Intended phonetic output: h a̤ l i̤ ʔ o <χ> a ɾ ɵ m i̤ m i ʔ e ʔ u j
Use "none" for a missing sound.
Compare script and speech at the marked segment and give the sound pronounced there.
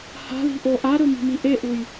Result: ʔ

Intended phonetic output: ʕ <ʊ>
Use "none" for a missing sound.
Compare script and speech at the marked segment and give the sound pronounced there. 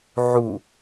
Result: u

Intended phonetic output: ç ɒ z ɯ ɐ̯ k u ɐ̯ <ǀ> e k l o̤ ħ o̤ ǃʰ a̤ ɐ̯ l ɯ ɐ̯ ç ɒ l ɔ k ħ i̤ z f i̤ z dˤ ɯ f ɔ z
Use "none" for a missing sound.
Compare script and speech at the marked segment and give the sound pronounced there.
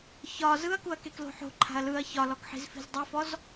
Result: k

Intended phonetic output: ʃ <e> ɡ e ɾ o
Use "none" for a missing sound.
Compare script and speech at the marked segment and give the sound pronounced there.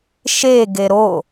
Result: e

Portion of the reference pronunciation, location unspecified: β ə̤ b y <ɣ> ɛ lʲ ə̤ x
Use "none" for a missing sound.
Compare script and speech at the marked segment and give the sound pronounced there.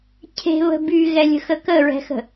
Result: ɣ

